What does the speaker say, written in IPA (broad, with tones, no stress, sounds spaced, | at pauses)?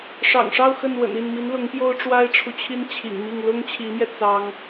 ʂ ɑ̰˨˩ ŋ ʂ ɑ˥˧ ʊ̯ x ə˥˩ n w ə̰˨˩ n i˥˩ n m i˧˥ n l ʊ˧˥ ŋ p j o˥ ʊ̯ ʈ͡ʂ w a˥ ɪ̯ ʈ͡ʂʰ u˨ t͡ɕʰ i˥ n t͡ɕʰ ḭ˨˩ ŋ m i˥˩ ŋ l ʊ˥ ŋ t͡ɕʰ i˧˥ m j ɛ˧ t͡s ɑ˥ ŋ